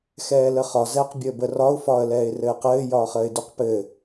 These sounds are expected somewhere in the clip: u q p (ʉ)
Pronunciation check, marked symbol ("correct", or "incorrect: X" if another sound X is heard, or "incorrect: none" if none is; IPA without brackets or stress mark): incorrect: ɘ